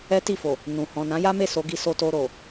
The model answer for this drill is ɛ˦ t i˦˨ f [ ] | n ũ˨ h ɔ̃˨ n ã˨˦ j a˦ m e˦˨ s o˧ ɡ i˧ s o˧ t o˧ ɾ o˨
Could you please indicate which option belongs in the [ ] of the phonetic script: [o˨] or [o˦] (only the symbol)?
o˨